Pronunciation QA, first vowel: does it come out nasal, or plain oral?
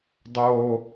oral